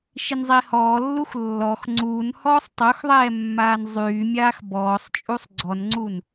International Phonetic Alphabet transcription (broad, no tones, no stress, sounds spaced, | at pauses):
ʃ i n zˤ e h ɔː lː u x lː ɔ x ŋ͡ǀ uː n h ɔː sˤ tˤ o x ðˤ ɛː mː aː n zˤ yː mʲ aː x b ɔː sˤ t͡ʃʼ u sˤ ɡ͡ǀ ɔ n ŋ͡ǀ u n